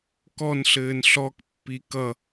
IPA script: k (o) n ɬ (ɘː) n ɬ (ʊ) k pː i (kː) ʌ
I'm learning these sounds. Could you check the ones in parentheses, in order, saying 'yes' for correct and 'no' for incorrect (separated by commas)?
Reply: no, yes, no, no